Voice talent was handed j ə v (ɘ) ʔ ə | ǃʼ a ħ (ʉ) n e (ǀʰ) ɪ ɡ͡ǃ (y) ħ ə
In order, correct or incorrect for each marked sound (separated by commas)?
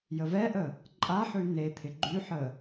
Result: incorrect, correct, incorrect, correct